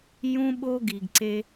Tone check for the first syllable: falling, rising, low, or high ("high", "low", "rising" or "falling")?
high